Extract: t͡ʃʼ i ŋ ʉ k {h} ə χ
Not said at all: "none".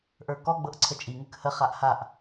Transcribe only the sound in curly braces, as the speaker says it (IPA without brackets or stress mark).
h